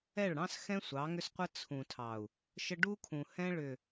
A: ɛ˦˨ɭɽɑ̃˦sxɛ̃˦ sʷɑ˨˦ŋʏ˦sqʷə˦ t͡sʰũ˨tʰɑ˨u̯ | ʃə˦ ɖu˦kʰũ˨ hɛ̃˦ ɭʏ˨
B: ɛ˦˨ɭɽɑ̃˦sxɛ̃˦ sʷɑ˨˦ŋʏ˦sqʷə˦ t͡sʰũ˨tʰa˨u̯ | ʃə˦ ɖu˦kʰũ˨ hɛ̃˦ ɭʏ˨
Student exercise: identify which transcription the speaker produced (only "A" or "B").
A